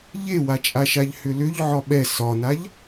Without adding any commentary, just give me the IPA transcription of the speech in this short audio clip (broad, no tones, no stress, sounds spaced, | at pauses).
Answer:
ʎ e w a t͡ʃʼ a ʃ a ʎ h ʏ l ʏ ʎ ʕ ɒ ɓ ɛ s ɒ n a ʎ